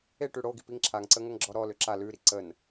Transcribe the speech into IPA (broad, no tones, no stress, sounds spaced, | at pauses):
e ʈ ʉ ɽ o ɡ i p i ŋ ǁʰ a ŋ ǀ ə ŋ ə ŋ ɡ͡ǁ ɔ ɾ ɔ l ʏ ǁ a l ʉ ɾ i ǀ ə n